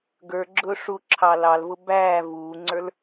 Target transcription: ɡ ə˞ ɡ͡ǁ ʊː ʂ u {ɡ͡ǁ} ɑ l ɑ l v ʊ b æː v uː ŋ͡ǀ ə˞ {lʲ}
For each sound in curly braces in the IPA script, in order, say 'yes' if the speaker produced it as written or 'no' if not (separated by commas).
no, no